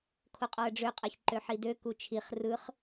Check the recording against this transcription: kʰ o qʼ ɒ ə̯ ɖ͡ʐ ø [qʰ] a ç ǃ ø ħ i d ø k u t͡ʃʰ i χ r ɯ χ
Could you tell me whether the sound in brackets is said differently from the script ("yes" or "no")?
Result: yes